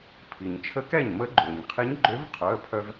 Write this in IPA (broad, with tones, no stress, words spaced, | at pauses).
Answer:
pʰi˩ɲ t͡ʃʰə˧˥ kɛ˥˩ɲmə˧˥ ɡ͡ǃø˩ɲ qʰe˧˥ɲɡ͡ǃø˧˥v qʰœ˩˧˩ə̯pʰœ˧v